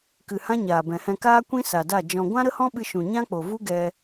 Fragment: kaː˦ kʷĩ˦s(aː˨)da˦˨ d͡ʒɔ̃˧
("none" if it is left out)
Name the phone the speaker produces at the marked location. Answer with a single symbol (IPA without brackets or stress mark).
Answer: a˨